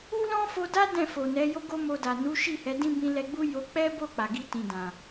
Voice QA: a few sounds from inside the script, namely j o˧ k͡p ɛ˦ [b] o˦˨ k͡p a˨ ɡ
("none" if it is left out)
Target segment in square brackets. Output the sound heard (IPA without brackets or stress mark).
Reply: b